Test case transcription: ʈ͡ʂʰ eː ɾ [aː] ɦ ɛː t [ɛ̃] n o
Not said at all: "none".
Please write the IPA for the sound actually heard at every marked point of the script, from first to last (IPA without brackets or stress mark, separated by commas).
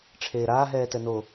aː, ɛ